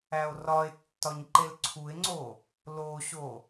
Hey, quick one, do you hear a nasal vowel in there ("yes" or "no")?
no